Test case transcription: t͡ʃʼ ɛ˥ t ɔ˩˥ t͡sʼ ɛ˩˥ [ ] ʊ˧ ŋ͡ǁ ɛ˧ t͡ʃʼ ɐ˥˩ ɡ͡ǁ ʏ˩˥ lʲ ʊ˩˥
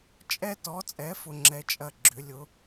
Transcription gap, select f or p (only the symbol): f